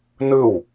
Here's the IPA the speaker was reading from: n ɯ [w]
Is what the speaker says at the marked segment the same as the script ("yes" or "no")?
yes